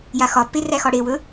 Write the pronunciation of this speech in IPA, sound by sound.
jaxɒpːe ræxɒɽewɵ

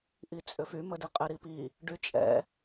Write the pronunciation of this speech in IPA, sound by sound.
ʔit͡sʼʏfy mədiqʼɪ ɾipi | ɖyt͡ʃʼɛ̰

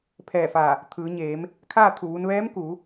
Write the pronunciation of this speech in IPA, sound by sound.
pʰɛː˧˩fa˧˩ | t̪ʰɯː˩˧ɲeː˩˧m | kʰaː˥˨ t̪ʰu˧˩ʋu˧n ʋɛː˧˥mku˩˧

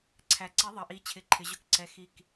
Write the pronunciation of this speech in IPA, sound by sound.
ǀʰæ˩ǀi˨˥ ðˤʌ˩ʔi˩˧t͡ɕʰɪ˩˧ ǃʰɪ˩˧ʑʊ˦˥kǀɛ˧˩ xi˧˩k

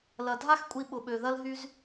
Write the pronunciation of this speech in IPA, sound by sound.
lɐ˨ dʱa˦xkʷʼi˧ɓʊ˨ɓø˨ ðɐ˦lɦy˦z

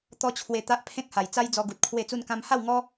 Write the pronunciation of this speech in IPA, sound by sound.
t̪ɔ˦t͡ɕʰwe˧ t̪a˦ʔpʰẽ˦k̚ha˨˩j t͡sa˦jd͡zɔ˧ɡu˨t̚ kʰwe˥˧t͡su˥˧nkã˦m ha˥˧w ŋɔ˦

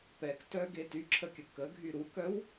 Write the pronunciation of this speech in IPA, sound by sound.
pɛktœɡe tyǁʰəkʲə kəɡʱy ɾukœw

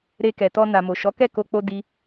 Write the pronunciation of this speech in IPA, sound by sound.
ɾe˧kɛ˨tɔ˧ na˨mo˨ʃɔ˨˦ kɛ˦˨ko˧k͡po˧ di˦

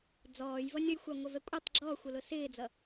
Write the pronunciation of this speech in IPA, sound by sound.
d͡zɔːjvʌnʲ ɔjxʷɑŋʷʌvɛ kʷʼɪtˤ ɡ͡ǁɔːxʷʌlʊ sɪːd͡zʌ

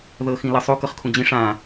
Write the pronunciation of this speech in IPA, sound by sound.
ðɤxĩlʌsˤu kɤχkʰũd͡ʑĩ ʂã

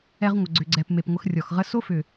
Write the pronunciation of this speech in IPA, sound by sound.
ɛ˧ʁŋʷə˨ ɡ͡ǀʏ˨ɡ͡ǀɛ˨p me˨pŋʷə˧xrʲɔ˨xʁə˦ so˦fʏ˨

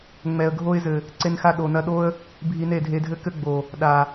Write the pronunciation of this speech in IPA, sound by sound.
ŋ͡mɛ˨ə̯ɡʱo˧ɪ̯zɘ˨ | ǀe˧nxa˧ ɗo˨nɐ˧ɗo˦ə̯ | bʱi˧ne˦˨dʱe˧dʱɘ˦ kɘ˦ɡ͡bo˨ | ɗa˨

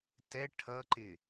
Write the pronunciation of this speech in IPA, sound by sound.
tɛ ʈʰʌǃɪ

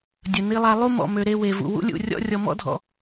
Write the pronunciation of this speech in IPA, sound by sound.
dʲə˨ni˧lˠa˧ lˠu˦mɔ̰˨mø˨ ɾe˧we˨vṵ˨ wṵ˦lʲṵ˦˨rʲɔ̰˦ rʲɔ˨mɔ̰˦dʱɔ̰˨

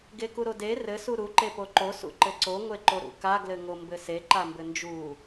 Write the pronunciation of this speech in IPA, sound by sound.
ɡekuɾode rɘ suɾu ǃepoǃo sṵǃɘǀo ŋʷeǃoɾṵka ɡlɘŋombɘse ǃambɘnd͡ʒu

